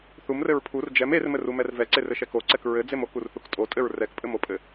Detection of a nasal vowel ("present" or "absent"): absent